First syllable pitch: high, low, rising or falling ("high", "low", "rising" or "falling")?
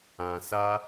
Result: low